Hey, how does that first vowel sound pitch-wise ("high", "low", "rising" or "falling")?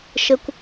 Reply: high